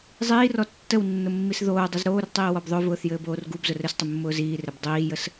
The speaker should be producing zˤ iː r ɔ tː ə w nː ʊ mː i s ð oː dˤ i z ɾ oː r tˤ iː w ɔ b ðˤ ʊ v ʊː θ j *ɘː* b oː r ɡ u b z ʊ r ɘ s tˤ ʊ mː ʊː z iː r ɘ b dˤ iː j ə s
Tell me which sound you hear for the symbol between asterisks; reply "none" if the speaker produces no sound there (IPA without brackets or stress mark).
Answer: ɘː